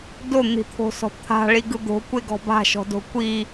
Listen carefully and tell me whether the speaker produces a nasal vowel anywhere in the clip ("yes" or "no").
no